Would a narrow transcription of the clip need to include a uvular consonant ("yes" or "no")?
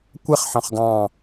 yes